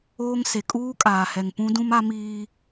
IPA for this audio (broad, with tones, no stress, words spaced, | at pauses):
oː˦ŋse˨ kʼuː˦kʼaː˨hɛ˨ŋpũ˦ dũ˦ma˦miː˦